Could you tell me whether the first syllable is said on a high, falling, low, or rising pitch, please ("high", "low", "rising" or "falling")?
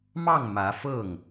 falling